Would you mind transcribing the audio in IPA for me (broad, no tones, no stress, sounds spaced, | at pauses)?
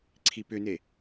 ǀʰ i p ʏ n e